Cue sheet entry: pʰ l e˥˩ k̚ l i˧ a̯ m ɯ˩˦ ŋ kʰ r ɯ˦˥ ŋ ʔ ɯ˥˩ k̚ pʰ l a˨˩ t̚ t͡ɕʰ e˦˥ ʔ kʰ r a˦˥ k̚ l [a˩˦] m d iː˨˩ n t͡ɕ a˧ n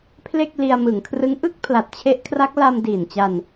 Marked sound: incorrect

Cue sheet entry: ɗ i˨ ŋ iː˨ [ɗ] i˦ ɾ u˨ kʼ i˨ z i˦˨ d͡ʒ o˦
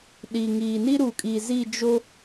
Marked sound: incorrect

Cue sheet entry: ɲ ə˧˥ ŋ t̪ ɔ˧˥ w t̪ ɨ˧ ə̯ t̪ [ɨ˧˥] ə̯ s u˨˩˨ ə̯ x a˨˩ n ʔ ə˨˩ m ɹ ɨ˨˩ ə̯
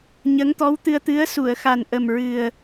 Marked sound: correct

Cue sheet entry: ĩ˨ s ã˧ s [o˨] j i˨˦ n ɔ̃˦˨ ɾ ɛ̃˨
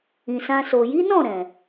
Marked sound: correct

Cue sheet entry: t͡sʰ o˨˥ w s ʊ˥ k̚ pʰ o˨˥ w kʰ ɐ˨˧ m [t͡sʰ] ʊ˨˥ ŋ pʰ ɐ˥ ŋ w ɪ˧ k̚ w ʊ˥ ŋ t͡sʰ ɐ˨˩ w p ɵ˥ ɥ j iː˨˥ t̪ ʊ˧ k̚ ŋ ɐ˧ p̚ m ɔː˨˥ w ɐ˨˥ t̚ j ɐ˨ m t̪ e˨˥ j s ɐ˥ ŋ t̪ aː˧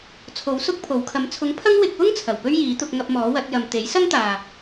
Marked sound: correct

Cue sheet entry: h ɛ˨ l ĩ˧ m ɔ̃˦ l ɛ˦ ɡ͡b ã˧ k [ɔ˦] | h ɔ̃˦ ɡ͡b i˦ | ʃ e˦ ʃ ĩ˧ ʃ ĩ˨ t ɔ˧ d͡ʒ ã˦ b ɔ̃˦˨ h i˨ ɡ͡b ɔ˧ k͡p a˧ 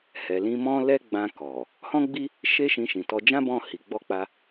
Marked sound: incorrect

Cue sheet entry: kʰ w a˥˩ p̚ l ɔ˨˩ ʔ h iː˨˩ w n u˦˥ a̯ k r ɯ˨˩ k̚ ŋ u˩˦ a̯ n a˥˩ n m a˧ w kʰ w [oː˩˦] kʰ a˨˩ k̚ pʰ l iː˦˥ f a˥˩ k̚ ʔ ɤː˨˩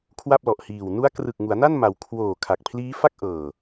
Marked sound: incorrect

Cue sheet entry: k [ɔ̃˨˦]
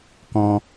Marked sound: incorrect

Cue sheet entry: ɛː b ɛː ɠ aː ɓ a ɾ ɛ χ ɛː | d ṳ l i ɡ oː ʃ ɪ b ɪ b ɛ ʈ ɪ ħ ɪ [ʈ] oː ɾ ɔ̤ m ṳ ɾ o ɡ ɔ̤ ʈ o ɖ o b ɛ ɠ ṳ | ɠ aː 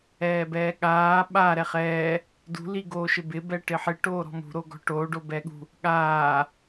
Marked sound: correct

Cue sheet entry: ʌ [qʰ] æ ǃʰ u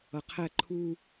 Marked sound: correct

